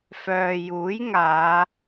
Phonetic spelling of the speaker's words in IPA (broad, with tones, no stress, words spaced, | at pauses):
fœː˨juː˨˥jŋaː˨˧